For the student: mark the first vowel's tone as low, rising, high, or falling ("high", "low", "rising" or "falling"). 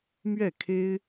falling